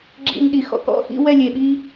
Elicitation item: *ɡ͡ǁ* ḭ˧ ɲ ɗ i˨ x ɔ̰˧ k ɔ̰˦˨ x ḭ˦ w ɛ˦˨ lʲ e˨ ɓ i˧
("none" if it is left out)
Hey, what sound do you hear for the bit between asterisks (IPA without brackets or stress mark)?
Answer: ɡ͡ǁ